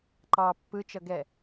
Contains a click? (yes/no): yes